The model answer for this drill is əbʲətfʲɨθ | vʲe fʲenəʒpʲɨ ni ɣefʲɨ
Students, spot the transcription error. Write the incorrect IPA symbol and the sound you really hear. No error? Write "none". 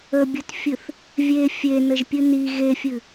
none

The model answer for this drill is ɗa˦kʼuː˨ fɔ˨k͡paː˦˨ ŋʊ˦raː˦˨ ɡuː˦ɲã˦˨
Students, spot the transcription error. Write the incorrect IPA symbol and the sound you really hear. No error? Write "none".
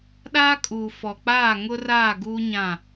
a˦ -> aː˦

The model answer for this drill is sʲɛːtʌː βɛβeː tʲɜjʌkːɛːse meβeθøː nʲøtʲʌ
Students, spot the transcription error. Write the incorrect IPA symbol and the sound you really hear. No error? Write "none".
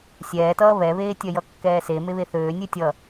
none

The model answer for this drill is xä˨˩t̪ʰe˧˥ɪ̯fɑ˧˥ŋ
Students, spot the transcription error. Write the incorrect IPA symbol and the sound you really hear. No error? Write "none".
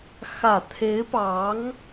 f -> p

